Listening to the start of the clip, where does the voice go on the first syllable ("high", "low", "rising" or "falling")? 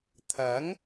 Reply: rising